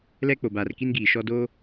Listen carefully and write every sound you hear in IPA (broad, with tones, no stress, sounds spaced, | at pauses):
l ɛ˦ k͡p o˨ b aː˨ r k i˦ n ɡ iː˨ ʃ ɔ˦ d o˦